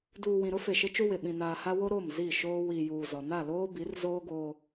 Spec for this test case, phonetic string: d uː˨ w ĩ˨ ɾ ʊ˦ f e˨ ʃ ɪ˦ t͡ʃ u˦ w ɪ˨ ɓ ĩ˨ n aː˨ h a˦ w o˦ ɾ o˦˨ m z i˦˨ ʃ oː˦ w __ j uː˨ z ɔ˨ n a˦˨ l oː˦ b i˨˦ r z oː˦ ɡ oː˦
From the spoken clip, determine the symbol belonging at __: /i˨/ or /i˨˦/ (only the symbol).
i˨